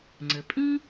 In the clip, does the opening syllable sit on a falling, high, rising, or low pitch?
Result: low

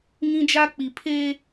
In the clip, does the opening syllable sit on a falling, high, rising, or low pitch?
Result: high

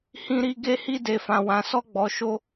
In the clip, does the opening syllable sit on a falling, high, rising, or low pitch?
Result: high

